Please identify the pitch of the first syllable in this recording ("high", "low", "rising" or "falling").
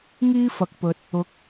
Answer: high